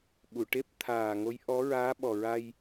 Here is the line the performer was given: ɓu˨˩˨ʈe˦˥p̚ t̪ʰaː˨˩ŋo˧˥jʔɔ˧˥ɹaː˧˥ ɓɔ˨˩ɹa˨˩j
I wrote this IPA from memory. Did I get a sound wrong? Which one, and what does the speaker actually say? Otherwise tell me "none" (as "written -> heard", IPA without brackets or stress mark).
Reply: a˨˩ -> a˧